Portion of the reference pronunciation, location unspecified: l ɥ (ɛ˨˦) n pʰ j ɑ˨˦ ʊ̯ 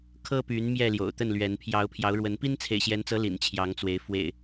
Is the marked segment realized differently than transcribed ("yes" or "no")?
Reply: no